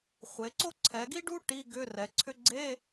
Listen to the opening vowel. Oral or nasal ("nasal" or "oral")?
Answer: oral